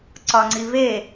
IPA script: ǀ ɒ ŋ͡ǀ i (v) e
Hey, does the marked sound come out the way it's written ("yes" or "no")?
yes